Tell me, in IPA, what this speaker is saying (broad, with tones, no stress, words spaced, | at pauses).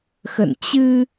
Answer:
xə̰˧˨nt͡ɕɨ˧